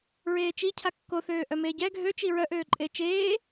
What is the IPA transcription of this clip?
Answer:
ɹ eː t͡ʃ i cʰ a kː o θ øː ʔ œ m eː ɟ ɛ ɡʱ ø t͡ʃ i ɹ œ ʔ øː ǃʼ eː t͡ʃ eː

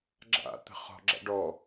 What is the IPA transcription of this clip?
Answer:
ɡ͡ǁ a̰ t̪ ə̤ χ ɔ̤ ɡ͡ǁ a̰ ɖ ɔ

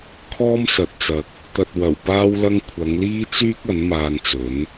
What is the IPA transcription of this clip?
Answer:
kʰ ɔː˥ m s ɐ˨ t̚ t͡s ɐ˨ k̚ | t̪ ɐ˨ t̚ w ɐ˨˩ w p aː˥ w l ɐ˥ ŋ kʷʰ ɐ˨˧ ŋ l iː˥ t͡s yː˥ k̚ ɐ˨˥ n m aː˧ n t͡s ɵ˨˥ n

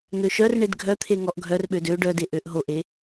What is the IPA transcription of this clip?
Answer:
n̪ ø ʃ œ r ɳ e d ɡʱ œ t̪ʰ e ŋ ɔ ʔ ɡʱ œ r ɓ ø d ø ɖ œ d e ʔ ø ʔ ɦ o ʔ e

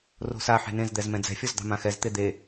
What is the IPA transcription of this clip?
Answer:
r o̤ s a ħ e̤ n ẽ z d̪ ɛ z m ɛ̃ d͡z ɛ̤ fʲ ɔ z d̪ ɑ̤ m ã x ɛ z t̪ e d̪ e

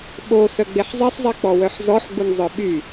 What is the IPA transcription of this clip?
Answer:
ɓ o s œ ɡ͡b e ħ zˤ e sˤ zˤ e k͡p ɔ w œ ħ z ɔ ħ ɡ͡b u n zˤ œ ɓ y

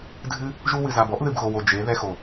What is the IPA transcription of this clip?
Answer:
dʱ ɨ˦ | ʒ u˧ w ɨ˨ z a˨ b ɔ˦ ʔ ð ɨ˨ b ɣ o˨ w o˨ d͡ʒ e˨˦ ð ɛ˧ x o˨

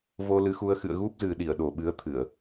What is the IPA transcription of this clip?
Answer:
v o˧ l ɨ˨˦ x u˧ ə̯ x ɨ̰˧˨ ə̯ ɣ u˦˥ p̚ z ɨ˨˩ ɗ i˧˩ ə̯ ɗ o˨˩ ɓ ɨ˨˦ ə̯ t̪ʰ ɨ˧˩˨ ə̯

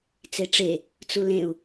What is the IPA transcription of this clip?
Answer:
t͡s e ʈ͡ʂ e | t͡s u l ẽ u̯

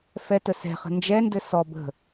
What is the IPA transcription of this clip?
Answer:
f ɛ t ə s ɛ̤ χ ə̤ n d͡ʒ ɛ n d ɘ s ɔ b ə̤

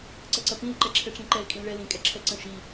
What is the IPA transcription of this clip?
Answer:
ǀ ɐ ǀ ɐ p ĩ l ǃ ɛ ǁʰ ɛ ʈ͡ʂ ĩ ǃ ɛ l kʼ ĩ l ɭ ɛ l ĩ kʼ ɛ ǁʰ ɛ ǀ ə̃ ʃ i

